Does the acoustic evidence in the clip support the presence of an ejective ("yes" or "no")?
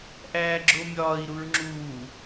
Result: no